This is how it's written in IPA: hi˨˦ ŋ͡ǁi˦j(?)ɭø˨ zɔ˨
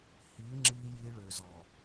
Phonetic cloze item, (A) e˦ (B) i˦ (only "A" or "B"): B